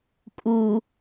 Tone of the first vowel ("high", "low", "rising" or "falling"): low